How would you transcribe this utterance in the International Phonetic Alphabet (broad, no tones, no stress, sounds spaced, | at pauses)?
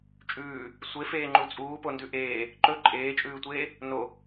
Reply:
t͡ʃʼ ʉː | sʷ e f eː ŋ͡ǃ u t͡sʼ uː p o n d ʉ ʔ eː | ǃ ɵ ǃʼ eː t͡ʃʼ ʉː tʷ eː | n o